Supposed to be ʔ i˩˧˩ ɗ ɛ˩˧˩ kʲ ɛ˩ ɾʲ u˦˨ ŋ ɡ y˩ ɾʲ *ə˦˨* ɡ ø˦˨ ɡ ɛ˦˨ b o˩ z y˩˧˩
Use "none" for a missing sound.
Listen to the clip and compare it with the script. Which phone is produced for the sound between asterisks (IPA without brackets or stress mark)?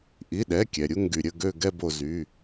ə˦˨